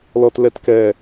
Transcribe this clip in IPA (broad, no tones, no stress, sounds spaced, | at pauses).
l ɔ t l ɛ t k ɛ